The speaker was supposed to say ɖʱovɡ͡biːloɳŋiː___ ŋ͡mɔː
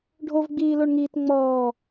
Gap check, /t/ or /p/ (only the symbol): t